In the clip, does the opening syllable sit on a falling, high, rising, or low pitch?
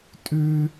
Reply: high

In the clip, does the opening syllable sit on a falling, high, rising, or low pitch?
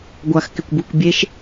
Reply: low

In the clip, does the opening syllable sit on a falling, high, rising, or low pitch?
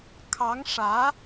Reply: rising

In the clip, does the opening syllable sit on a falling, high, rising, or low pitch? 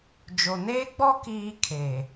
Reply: low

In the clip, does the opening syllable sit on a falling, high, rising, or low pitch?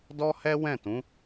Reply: high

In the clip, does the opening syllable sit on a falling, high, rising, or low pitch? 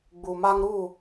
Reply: low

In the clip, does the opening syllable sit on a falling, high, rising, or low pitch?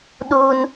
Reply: high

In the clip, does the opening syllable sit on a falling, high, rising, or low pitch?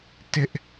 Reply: high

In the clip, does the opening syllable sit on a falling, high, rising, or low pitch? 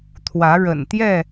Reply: rising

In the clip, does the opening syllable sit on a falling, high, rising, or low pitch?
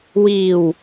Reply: low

